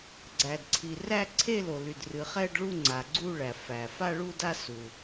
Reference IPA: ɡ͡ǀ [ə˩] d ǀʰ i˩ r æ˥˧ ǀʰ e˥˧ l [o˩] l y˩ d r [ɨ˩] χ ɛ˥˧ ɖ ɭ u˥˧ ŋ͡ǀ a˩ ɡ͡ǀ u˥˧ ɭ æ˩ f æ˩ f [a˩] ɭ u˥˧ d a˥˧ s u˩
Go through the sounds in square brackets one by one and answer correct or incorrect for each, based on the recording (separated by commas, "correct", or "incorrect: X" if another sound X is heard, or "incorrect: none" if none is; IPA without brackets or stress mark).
incorrect: æ˩, correct, correct, incorrect: a˥˧